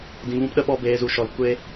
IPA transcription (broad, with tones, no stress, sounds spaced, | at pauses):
d ĩ˧ v ũ˦ p ɗ ə˦ ɓ ɔ˦ b eː˧ z u˧ ʃ ɔ˧ l kʷ e˦